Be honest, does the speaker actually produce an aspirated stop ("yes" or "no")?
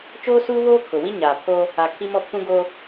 yes